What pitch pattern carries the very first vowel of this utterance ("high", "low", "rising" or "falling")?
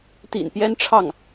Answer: low